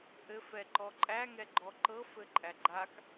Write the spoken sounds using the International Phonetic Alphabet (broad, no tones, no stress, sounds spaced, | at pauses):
ʔ ɘ f ɛ ǃ ɔ ǃʼ æ ŋ ɛ ɡ͡ǃ ɔ ǃ ɤ f ɘ ǃʼ æ ɡ͡ǃ a k